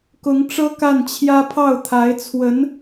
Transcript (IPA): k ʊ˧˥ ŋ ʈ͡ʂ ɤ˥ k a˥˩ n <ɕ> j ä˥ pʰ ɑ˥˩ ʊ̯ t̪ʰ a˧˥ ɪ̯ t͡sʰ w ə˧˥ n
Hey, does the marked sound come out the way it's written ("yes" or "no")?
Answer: no